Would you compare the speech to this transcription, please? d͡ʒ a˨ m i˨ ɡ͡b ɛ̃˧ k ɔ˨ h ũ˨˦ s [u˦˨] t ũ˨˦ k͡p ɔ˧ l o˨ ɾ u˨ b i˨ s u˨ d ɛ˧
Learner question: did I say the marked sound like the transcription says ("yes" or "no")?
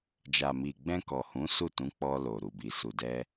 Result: yes